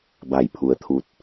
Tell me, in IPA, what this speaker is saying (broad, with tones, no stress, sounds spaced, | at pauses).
b a˧˩ j pʰ u˩˧ ə̯ t̪ʰ u˧ t̚